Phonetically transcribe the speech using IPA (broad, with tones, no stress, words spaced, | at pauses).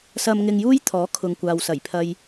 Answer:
sɐ˧mŋɪ˧ŋjuː˥j t̪ʰɔː˨˥ kʰʊ˨ŋkʷaː˨wsɐ˨˩j pʰɐ˨j